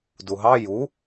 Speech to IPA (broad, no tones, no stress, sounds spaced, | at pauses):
d u ɦ ɑ j u